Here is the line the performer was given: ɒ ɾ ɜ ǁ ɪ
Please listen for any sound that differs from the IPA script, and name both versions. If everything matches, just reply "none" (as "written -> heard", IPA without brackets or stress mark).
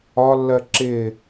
ɾ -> lː